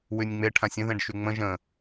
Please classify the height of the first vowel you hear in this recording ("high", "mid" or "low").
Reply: high